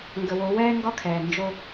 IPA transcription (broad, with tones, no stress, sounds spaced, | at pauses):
ŋ ɡ ə˨ w o˨˦ w ɛː˦ ŋ ɡ ɒ˦ kʰ ɛː˨ n d͡ʒ o˦